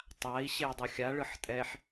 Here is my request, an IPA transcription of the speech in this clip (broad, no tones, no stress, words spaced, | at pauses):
tˤai̯ ɕei̯dˤoxʲa ɭɯħtʼɛħ